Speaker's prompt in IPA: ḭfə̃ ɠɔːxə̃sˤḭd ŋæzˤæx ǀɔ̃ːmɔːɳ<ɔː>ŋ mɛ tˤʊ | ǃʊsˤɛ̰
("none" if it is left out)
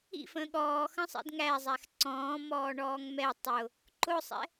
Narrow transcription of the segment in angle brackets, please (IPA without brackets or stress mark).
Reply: ɔː